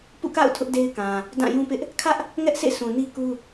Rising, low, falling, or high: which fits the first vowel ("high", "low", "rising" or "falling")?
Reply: falling